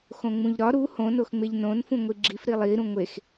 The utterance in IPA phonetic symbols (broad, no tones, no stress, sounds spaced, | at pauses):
x õ ŋ͡m ũ ʎ ɾ ɒ ɾ u h õ n o x ŋ͡m e ʎ n õ n f ũ ŋʷ i ɡ͡ǁ i f ɾ i lˠ i ɾ ũ ŋʷ e x